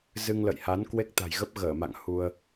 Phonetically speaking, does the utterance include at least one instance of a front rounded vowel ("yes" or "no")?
no